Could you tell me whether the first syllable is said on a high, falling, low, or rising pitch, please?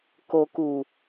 low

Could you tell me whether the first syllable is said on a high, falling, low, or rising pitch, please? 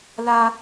high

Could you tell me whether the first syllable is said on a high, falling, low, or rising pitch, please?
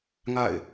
falling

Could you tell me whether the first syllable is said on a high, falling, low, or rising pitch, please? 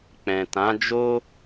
low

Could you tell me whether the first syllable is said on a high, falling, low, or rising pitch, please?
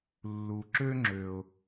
low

